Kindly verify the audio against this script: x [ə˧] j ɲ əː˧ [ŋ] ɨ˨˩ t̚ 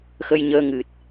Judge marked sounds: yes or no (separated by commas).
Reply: yes, yes